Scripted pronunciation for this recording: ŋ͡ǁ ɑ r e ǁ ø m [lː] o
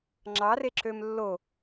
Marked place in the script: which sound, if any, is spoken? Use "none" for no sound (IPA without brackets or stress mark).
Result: lː